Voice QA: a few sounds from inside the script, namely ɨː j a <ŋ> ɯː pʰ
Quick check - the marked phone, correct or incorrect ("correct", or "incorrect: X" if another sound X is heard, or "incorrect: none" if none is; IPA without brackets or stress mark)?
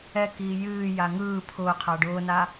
correct